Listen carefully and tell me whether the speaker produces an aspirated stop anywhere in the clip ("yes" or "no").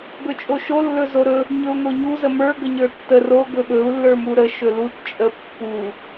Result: no